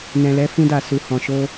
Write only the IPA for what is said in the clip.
nɛ̃˨lɛ˨˦ fĩ˧da˨ su˨hɔ̃˨ʃo˧

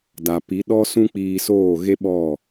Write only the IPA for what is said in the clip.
da˨pi˨˦ɗɔ˦ sũ˦k͡piː˧soː˦˨ɣe˦ ɓɔ˦˨

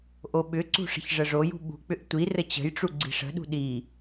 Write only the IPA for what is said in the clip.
ʔoɓʏǀṳ ʂə̤çʐəʐojṳ ɓṳk͡pʏʔ tʷirə t͡ɕə̤jʈ͡ʂu ɡ͡ǀi̤ʂə̤ɗṳ ɗi

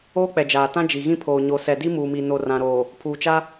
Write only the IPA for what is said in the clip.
oː˦k͡pɛ˨ d͡ʒaː˨tã˦ d͡ʒi˨ɣĩ˦pʰoː˨ ɲo˨sɛ˨di˦ muː˨mi˨ no˨rã˨ɾoː˨ | pʰuː˨t͡ʃa˦

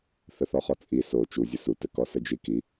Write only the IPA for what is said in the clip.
θəθɔχɔt͡sʼi so t͡ʃuzʲə sutɘ kɔsəd͡ʒiki

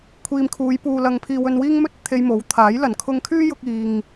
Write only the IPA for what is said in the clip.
kʷʰiː˨mkʰuː˨˧jpuː˨ lɐ˨ŋpʰiː˨w ɵ˨nwiː˧ŋmɵ˧t̚ t̪ʰe˧jmo˨˥wt̪ʰaː˨˥jlɐ˨˥n kʰʊ˧ŋkʰyː˥jʊ˧k̚ iː˨ŋ

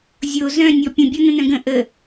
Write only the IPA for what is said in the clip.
zʲo zœ̃ nʲɔpʲə̃ bʲɔnə̃nœ̃ɡə̃ ʔə

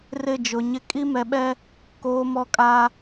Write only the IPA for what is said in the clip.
rɪ˦˨d͡ʒʊ˨ɲɪ˦ kʼi˦mɛ˨ɓɛ˦ | koː˨mɔ˨kʼa˨

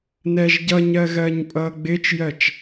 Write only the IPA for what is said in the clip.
nɛʒɟʌɲɜ ɣɜːɲpʼʌːɡ͡bɪːt͡ʃjɜt͡ʃ

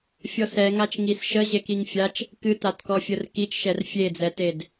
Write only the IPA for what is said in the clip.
fʲɔsɛ ŋat͡ʃŋisʃə ʑekiŋfʲat͡ʃ | kɨtatkɔ fʲərkit͡ʃʃɛr fʲed͡zɛted

